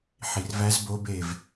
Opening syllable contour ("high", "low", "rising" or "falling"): low